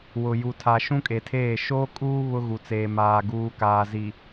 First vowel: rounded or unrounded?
rounded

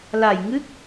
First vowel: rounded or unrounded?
unrounded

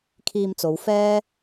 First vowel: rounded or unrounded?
unrounded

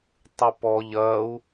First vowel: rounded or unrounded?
unrounded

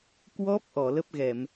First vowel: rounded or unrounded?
rounded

